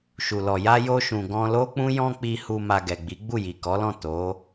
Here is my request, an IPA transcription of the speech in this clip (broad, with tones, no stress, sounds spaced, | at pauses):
ʃ u˨ l ɔ˨ j a˧ j o˧ ʃ ũ˨ ɡ ɔ̃˧ l o˦ k͡p ũ˦ j ɔ̃˦ k͡p i˧ h u˧ m a˧ ɡ ɛ˨ ɡ͡b i˨˦ ɡ͡b u˦˨ j i˨ k ɔ˨˦ l ɔ̃˦˨ t o˨˦